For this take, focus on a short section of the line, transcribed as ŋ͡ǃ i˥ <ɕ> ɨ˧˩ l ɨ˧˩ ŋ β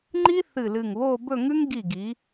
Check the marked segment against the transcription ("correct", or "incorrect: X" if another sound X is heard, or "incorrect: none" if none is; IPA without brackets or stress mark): incorrect: θ